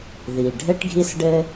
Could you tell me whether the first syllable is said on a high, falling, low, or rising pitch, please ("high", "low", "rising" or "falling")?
low